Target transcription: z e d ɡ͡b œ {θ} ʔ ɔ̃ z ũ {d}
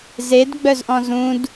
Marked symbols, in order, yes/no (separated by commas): no, yes